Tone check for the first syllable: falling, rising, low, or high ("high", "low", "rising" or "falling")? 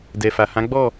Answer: low